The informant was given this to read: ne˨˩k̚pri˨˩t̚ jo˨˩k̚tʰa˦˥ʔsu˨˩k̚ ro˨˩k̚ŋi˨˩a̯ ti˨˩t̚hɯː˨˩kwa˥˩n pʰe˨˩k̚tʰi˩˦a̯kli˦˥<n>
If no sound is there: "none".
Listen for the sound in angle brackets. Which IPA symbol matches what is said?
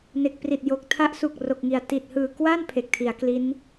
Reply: n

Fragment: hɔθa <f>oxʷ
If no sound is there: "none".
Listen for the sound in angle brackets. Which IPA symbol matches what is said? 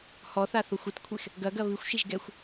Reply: θ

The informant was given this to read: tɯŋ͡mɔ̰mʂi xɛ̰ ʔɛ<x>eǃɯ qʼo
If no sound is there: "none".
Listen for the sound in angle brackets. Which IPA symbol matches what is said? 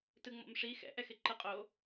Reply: x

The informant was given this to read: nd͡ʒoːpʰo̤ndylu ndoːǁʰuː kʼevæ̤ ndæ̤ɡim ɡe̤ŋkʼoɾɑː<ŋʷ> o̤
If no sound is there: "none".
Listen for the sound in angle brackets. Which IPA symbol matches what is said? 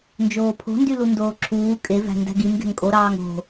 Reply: ŋ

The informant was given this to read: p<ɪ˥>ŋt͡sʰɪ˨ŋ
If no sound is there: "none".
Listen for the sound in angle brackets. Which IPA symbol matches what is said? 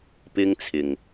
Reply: ɪ˥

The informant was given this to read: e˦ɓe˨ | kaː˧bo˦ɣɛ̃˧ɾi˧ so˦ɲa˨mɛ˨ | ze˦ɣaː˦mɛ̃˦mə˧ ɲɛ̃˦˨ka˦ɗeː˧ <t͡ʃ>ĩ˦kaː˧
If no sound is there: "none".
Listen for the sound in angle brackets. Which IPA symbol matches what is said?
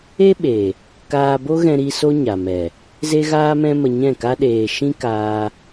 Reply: ʃ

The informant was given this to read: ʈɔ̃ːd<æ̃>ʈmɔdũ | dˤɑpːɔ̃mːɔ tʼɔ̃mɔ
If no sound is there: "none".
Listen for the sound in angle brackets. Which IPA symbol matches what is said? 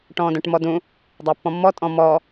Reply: œ̃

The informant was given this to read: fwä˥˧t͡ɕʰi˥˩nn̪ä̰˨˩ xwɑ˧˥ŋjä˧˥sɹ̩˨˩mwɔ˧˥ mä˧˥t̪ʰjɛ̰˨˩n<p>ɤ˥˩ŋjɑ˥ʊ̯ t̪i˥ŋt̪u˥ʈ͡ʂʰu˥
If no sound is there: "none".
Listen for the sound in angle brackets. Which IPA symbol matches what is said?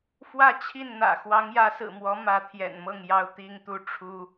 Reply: m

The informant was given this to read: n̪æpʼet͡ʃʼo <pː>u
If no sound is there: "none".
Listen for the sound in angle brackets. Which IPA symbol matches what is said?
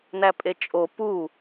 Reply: p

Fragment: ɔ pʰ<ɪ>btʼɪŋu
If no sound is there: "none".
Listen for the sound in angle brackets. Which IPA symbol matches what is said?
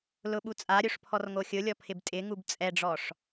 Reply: ɪ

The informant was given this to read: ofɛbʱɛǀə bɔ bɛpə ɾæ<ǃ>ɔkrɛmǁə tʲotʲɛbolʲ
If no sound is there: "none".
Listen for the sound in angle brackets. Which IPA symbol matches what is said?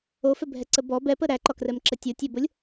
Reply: ǃ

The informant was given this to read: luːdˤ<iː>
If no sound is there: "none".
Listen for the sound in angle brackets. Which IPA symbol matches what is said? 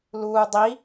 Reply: i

